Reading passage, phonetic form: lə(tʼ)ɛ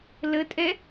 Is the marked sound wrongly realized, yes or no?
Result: no